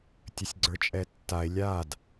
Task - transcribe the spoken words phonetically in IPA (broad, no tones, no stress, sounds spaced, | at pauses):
tʲ ə sʲ ɡ͡ǀ ə˞ t͡ʃʼ ɛ tː a e̯ lʲ a d